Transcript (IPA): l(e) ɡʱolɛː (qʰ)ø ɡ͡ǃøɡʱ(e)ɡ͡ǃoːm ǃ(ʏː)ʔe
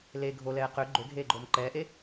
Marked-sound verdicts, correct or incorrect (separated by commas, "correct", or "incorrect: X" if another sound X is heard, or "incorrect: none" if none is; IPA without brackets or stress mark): correct, incorrect: q, incorrect: eː, incorrect: ɛː